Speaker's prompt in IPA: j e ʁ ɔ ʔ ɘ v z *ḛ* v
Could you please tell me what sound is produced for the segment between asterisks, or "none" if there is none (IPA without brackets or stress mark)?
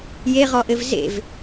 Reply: ḛ